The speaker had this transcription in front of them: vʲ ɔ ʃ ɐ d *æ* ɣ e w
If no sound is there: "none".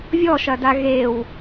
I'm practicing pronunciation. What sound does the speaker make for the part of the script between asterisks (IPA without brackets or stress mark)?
a